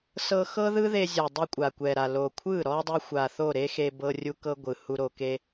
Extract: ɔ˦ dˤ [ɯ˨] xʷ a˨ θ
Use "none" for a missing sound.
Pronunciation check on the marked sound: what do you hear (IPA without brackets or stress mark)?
ɯ˧